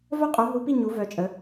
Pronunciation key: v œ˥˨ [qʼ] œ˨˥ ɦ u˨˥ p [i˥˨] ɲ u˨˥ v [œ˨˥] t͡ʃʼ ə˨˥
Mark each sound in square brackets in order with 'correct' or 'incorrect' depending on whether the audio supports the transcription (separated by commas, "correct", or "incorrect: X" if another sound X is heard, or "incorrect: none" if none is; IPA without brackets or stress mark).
correct, correct, correct